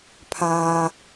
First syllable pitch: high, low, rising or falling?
high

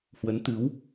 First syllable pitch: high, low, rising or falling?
rising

